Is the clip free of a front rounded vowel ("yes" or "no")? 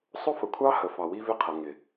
yes